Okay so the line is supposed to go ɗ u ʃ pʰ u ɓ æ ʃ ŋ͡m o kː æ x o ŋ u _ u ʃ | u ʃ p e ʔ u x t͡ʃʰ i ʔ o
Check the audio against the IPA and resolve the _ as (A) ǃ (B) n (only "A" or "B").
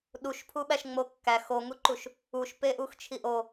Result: A